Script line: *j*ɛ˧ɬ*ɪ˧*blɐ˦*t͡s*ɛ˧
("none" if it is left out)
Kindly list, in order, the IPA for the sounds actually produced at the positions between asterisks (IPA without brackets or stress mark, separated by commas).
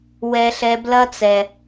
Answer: w, ɛ˧, t͡s